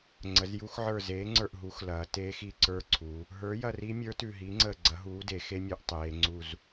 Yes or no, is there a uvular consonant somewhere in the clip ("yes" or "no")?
no